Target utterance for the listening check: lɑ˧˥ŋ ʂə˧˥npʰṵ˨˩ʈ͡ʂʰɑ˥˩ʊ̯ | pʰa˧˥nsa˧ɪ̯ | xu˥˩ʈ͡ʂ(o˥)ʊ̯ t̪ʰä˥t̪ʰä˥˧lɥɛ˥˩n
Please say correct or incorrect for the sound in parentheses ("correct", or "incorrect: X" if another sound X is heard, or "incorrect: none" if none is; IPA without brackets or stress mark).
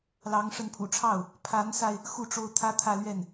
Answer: correct